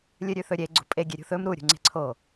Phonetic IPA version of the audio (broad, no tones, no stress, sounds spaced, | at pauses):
lʲ ɨ ɾʲ ʉ θ ɵ ɾʲ e ɡ͡ǀ ṳ pʼ e ɡʲ e ɾʲ ṳ θ ɵ m ɾ u ɾʲ ṳ ŋ͡ǀ e̤ ǀʰ o